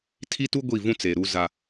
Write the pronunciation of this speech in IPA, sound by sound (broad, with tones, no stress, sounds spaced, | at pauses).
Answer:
tʰ i˦ t u˦ ɡʷ i˦˨ v ũ˦ t͡s e˨ ɾ u˦ z a˦